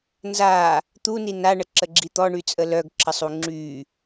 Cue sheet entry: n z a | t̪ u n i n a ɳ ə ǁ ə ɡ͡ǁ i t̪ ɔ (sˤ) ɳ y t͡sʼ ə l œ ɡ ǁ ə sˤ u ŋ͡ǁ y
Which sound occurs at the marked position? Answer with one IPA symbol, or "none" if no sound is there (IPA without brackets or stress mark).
none